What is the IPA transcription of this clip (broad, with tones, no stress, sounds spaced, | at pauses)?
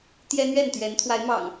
t̪ j ɛ˦ n̪ ɥ ɛ˥˨ n t̪ ɥ ɛ˨˦ n t̪ʰ w a˨˦ ɪ̯ m ɑ̰˨˩ ŋ